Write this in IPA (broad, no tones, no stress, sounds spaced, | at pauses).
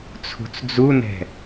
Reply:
t͡sʰ ṳ t͡s d͡z u n ɛ̤